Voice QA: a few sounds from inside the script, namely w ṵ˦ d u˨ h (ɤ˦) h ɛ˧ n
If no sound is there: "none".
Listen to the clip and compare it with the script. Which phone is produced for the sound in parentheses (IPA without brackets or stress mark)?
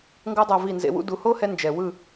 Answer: o˦